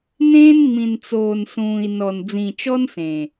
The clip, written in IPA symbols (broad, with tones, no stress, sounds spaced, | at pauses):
n ẽː˦ n ŋ͡m ĩ˨ n t͡s oː˨ n s ũː˨ i̯ n ɔ˨ n d͡z ĩ˨ t͡ʃ ɔ˦ n s ẽ˨